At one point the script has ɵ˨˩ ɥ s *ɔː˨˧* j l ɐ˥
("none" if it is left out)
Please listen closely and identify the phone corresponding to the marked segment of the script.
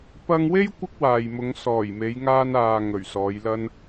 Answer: ɔː˨˧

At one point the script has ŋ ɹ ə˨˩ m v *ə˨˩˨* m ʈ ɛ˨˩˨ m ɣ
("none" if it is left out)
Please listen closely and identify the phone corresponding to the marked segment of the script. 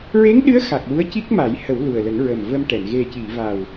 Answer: ə˧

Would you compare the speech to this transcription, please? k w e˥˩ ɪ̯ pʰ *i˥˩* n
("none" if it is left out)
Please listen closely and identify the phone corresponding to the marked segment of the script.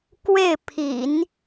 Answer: ḭ˨˩˦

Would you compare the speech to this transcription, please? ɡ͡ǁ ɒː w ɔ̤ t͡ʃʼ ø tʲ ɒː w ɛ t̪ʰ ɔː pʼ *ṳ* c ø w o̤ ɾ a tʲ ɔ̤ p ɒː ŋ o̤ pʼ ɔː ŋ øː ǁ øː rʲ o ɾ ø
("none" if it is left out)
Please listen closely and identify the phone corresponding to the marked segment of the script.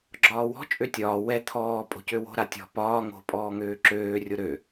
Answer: o̤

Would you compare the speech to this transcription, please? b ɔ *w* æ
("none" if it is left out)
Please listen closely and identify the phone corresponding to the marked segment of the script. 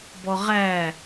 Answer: ʁ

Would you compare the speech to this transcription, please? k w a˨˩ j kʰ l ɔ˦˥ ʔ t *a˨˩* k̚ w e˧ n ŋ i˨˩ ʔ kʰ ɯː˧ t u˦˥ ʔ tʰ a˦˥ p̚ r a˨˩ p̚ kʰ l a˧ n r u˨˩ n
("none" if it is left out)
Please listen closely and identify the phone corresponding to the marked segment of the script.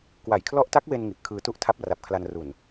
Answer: a˦˥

